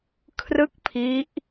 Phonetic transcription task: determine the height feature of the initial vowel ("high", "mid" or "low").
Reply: high